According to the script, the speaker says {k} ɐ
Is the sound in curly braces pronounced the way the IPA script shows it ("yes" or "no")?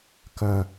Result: yes